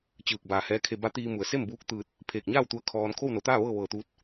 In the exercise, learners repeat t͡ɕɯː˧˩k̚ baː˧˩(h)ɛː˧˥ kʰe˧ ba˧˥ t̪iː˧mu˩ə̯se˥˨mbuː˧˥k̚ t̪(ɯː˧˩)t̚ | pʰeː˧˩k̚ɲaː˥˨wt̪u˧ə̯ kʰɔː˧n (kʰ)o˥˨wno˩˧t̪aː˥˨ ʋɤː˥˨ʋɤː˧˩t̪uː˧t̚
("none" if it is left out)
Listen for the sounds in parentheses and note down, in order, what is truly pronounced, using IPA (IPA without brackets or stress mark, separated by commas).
h, ɯː˧, kʰ